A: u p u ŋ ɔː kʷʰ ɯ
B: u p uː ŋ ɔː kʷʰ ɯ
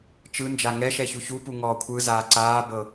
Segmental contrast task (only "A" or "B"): A